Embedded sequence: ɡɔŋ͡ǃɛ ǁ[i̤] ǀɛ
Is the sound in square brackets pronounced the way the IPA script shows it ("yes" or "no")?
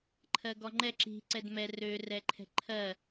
yes